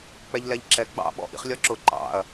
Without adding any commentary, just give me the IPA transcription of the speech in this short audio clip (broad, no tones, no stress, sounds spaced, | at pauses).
k͡p ɛ ʎ l ɛ ʎ ǁ ɛ ɡ͡b ɑ̰ ɓ ɔ̰ ʔ ḭ χ lʲ ɒ ǁ ʊ ǃ ɑ̰ ɐ̯